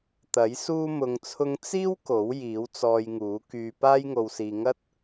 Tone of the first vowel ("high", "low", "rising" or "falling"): rising